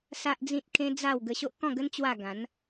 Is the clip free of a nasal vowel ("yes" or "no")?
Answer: no